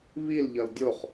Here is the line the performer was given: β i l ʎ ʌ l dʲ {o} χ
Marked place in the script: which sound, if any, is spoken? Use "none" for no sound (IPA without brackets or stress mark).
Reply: o